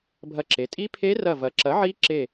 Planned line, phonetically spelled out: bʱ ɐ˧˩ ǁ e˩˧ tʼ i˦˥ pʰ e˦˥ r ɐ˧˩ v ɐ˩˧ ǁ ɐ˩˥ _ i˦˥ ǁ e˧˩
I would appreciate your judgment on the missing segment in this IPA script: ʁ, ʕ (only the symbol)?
ʕ